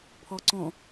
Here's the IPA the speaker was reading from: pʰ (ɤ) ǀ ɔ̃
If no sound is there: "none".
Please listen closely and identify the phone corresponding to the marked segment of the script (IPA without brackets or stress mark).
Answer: ɔ